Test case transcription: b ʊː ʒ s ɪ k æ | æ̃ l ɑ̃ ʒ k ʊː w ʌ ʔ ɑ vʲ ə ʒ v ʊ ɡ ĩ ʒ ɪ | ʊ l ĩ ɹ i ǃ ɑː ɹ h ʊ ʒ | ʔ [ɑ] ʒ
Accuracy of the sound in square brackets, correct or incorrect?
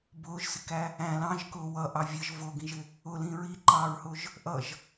incorrect